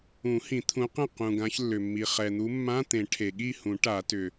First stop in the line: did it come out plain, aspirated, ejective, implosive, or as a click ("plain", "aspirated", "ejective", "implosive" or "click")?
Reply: aspirated